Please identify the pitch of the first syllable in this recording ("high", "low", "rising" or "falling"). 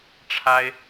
high